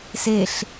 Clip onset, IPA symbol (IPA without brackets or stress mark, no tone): s